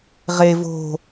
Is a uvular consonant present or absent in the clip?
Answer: present